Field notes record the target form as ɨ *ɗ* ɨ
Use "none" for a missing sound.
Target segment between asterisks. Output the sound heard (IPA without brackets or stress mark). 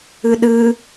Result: ɗ